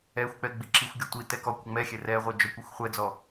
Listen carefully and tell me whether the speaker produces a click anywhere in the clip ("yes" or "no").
yes